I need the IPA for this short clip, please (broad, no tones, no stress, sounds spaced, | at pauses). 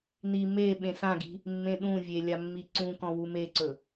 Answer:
n i m e ɓ ẽ s ã ɡ i̤ | mː ẽ ɗ ũ vʲ e lʲ a mː i ǀ ũ k ɔ̃ w u m e ǀ ɵ